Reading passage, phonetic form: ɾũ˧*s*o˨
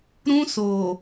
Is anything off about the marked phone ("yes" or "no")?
no